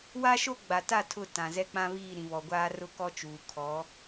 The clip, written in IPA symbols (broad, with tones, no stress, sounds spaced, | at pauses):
w a˦ ʃ o˦ ɡ͡b a˨ t a˦˨ tʰ ʊ˦˨ t ã˨ z ɛ˦ k͡p ã˦ β iː˦˨ ɾ ĩ˨ β ɔ˨ ɡʷ aː˦ r ʊ˦ k ɔ˦ t͡ʃ uː˨ kʰ ɔ˨˦